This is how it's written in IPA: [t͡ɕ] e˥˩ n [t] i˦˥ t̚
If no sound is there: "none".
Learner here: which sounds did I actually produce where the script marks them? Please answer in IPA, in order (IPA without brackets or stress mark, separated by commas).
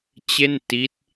t͡ɕ, t